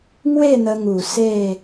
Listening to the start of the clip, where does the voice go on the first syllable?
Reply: falling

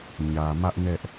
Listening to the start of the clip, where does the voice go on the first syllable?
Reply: low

